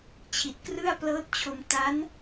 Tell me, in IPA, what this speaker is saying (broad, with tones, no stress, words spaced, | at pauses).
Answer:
t͡ɕʰi˨˩t̚krɯ˥˩a̯plɤː˦˥t̚t͡ɕʰo˧m ta˦˥n